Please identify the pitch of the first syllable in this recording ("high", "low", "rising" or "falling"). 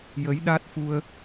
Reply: rising